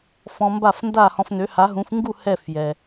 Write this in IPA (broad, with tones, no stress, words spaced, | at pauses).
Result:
fɔ̃˧mba˥˩fnda˥˩ hɔ̃˧fnø˩˥ha˩˥ɦũ˩˥f ŋɡu˥˩ hɛ˥˩fjɛ˩